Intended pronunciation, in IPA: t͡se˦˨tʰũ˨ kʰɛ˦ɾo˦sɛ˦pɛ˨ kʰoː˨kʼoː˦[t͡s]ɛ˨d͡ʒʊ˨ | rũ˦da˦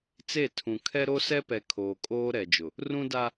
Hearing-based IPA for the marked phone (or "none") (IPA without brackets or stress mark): ɾ